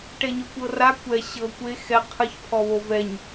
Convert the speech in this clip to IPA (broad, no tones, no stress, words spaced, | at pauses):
ʈɛɲokʷɤra kʷɛ ɕɤ kʷe xɛ qʰɯç pʰɔβovɛɲ